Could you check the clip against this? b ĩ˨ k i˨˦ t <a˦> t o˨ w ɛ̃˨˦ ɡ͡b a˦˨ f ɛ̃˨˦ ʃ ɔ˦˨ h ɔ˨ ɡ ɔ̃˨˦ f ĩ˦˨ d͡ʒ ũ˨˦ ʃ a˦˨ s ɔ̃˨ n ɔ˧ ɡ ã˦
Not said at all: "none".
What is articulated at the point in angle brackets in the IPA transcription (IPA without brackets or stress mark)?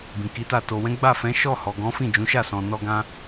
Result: a˦˨